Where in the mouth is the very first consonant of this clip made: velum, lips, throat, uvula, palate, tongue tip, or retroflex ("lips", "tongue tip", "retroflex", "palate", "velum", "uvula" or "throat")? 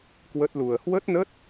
velum